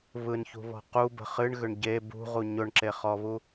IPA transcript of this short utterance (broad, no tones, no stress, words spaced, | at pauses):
βɯnçṳβɔ̤ qubə̤ χɨɳɣʏɳ ɟe bṳʁu ɲʊɳǁeχɔβu